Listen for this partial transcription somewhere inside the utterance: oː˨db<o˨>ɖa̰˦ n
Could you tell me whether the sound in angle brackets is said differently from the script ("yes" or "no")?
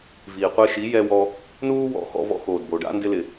no